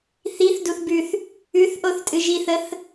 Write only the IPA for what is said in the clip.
θiθduθbʉθ | ʉθʔoθtʼɨ ʒiθəθ

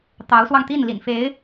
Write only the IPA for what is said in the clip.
t̪ɑ˧˥ʊ̯swɑ˧ŋt̪i˥˩n lḭ˨˩nfe˧˥ɪ̯

